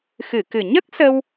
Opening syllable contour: low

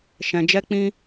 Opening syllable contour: low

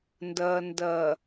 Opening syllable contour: low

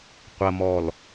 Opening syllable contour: low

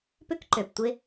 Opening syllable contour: high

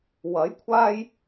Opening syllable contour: rising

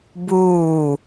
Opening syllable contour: falling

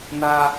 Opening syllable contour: high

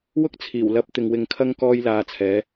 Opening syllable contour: high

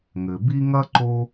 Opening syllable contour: low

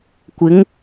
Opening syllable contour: rising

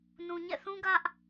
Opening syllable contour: low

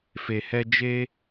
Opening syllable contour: low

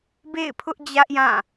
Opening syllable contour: falling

